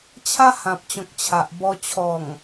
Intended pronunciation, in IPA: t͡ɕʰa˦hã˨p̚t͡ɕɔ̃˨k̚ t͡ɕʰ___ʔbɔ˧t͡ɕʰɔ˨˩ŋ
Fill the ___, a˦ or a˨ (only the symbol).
a˨